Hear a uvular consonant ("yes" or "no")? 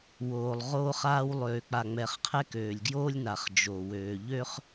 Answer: yes